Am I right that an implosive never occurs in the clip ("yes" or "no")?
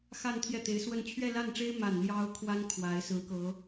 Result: yes